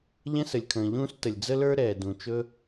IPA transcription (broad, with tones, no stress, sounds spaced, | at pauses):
ʎ ɛ̃˥ s ə˩ lʲ kʰ ə̃ː˩ ʎ ũː˥ s t ə˩ lʲ d͡z ə˥ l ə˞˥ ɾ ɛː˩ d ũ˩ t͡ʃ ɵ˥